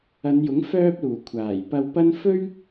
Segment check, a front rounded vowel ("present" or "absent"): present